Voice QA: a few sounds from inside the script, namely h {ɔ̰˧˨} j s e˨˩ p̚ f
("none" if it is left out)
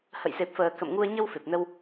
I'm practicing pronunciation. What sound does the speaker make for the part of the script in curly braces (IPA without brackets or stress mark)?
ə̰˧˨